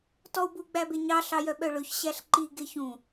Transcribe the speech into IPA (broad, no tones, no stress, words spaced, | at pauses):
tɔu̯bu ɡ͡bæbeɲɑ ɬɑjœɓœɭɵç ɕæɬǃi ɡeçũ